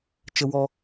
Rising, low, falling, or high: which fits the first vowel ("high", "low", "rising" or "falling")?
high